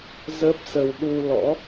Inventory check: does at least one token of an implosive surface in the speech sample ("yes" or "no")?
yes